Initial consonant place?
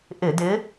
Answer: glottal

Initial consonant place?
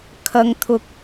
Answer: velar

